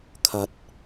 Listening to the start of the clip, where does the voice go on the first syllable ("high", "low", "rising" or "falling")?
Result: low